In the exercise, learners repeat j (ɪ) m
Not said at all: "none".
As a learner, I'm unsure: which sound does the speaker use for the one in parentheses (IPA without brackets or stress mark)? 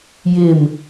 ɪ